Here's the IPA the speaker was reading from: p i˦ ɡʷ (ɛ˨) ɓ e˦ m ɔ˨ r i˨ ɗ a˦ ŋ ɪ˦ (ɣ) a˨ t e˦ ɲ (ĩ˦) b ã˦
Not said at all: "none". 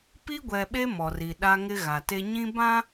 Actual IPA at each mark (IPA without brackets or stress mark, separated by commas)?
ɛ˨, ɣ, ĩ˦